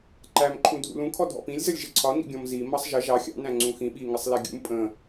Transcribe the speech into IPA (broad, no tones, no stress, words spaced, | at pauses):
ǃæmǃʰũ dʱṵlũkʰɔ dʱɔ̰pĩlʲzəlʲʒɪ ǀʰɒnḭɡʲɔ̃m zi mʌsˤʒə ʒɑ xʲɑ̰næ̃ ŋ͡ǀũxĩ ɓiŋɪsˤlɛ ɡʲṵm pʼə̃